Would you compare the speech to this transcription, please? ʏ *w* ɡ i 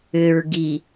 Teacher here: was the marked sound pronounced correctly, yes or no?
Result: no